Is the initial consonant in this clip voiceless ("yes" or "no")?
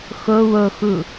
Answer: yes